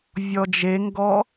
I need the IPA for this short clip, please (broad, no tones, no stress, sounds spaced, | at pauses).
vʲ ɔ d͡ʒ e ŋ ɡ ɔ